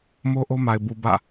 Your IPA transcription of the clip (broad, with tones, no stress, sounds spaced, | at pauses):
m o˦ ʔ o˦ m a˨ ɪ̯ b u˨ b ä̰˦˨